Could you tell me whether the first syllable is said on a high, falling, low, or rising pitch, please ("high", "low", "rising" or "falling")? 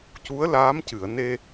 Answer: rising